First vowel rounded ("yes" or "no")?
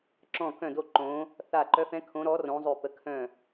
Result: yes